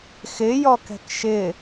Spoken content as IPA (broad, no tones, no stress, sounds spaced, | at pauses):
x ɪ j ɔ k ɛ̤ k ʃ ɪ